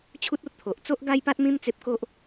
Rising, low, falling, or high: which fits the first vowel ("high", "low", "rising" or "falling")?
high